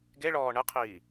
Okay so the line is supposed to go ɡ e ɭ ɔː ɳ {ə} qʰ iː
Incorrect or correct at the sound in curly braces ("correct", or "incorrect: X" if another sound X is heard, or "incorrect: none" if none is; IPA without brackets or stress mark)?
correct